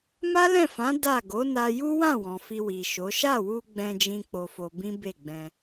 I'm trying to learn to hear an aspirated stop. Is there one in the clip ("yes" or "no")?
no